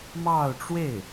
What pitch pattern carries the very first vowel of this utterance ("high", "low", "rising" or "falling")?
falling